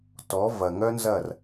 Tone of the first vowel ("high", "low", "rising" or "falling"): rising